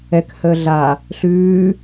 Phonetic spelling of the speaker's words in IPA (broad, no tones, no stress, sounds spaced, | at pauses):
ɛ k h əː ɮ a | ɬ ʉː